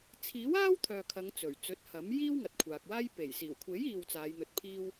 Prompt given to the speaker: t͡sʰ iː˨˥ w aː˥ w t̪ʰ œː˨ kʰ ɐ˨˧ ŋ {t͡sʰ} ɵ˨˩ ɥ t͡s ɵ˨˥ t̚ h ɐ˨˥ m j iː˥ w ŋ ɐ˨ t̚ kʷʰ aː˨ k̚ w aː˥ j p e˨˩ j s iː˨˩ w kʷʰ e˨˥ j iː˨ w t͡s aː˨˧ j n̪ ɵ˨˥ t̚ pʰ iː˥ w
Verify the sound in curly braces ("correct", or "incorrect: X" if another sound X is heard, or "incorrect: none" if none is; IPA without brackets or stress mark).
incorrect: t͡s